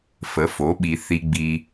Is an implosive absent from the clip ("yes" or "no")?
no